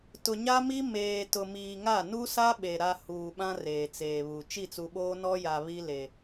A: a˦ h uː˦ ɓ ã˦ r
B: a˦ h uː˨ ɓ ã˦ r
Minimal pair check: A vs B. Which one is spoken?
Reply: B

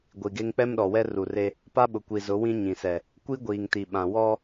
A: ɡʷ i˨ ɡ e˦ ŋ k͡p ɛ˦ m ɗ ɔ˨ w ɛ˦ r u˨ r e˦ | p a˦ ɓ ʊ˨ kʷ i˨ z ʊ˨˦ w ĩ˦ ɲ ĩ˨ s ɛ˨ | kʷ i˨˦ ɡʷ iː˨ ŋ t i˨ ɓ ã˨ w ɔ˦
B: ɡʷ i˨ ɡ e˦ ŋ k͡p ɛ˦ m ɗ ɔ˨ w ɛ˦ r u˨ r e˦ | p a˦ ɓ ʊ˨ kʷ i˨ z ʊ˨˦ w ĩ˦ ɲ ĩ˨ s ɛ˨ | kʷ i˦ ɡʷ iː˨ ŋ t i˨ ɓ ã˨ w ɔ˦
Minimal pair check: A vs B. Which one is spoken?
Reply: B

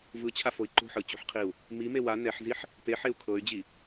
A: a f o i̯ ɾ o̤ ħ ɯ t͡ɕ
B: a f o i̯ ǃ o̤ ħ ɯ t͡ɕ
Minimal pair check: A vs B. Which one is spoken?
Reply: B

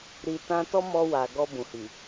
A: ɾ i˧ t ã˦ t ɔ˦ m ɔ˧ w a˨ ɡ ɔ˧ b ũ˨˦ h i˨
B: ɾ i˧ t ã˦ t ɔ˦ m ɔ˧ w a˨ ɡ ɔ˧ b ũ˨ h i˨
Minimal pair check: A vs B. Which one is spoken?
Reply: B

